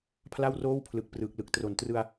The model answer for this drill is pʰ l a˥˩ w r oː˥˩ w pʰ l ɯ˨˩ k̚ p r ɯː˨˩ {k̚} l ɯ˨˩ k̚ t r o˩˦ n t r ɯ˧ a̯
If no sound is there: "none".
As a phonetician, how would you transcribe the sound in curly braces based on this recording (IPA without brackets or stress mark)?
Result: k̚